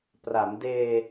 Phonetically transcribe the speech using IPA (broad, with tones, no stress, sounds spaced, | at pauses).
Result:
p r a˩˦ m d eː˧